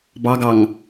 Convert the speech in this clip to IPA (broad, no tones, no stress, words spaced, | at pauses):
bɑɡɑŋ